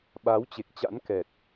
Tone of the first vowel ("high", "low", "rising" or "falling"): rising